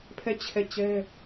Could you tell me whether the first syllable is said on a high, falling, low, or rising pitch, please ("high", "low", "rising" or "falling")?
falling